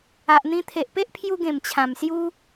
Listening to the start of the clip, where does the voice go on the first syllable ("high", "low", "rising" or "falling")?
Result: low